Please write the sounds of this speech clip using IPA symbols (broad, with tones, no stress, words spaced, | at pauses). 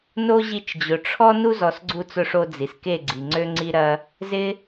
no˦ʑi˧t͡ʃ d͡ʑʊ˨ʈ͡ʂʰɔ˦ nu˦zɔ˨sɡ͡ǀu˧ t͡sʊ˧ʂo˧ d͡zi˨ske˦˨ɡ͡ǀi˨ ŋ͡ǀø˦ŋ͡ǀi˦ɾɐ˦ | zɪ˦